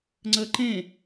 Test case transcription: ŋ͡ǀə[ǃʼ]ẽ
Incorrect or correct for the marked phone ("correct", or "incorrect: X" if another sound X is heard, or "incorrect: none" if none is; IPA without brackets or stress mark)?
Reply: incorrect: ǃ